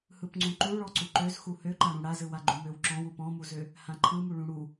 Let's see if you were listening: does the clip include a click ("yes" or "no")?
yes